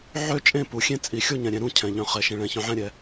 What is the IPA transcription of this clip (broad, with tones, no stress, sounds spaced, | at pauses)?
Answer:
ʕ ø˥˨ t͡ʃʼ ẽ˥˨ p u˨˩ xʲ ẽ˥˨ t͡sʼ i˨˩ xʲ o˥˨ ɲ ɛ̃˨˩ ɾʲ ɛ̃˨˩ ɾ ũ˥˨ cʰ ɛ̃˨˩ ʎ œ̃˨˩ χ ɛ˨˩ ʃ ẽ˨˩ ɭ ɛ̃˨˩ ç œ̃˨˩ ʕ ɛ̃˥˨ ɾʲ ɛ˨˩